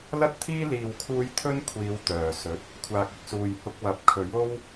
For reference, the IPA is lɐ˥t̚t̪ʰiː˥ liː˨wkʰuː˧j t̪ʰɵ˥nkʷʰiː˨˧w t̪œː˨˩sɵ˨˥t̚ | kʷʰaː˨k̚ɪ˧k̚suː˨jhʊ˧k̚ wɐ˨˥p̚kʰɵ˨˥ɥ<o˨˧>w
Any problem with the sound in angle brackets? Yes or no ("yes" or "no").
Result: yes